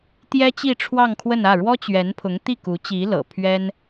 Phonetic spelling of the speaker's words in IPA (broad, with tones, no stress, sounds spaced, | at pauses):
t̪ j ɛ˥ t͡ɕ i˥˧ ʈ͡ʂʰ w ɑ˥˧ ŋ kʰ w ə˥˧ n ä˥˩ ɻ w ɔ˥ t͡ɕ ɥ ɛ˧˥ n pʰ ʊ˧˥ ŋ t̪ i˥˩ k u˧˥ t͡ɕ i˧˥ l ɤ̰˨˩ pʰ ɥ ɛ˥ n